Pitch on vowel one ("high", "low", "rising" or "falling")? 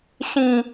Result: high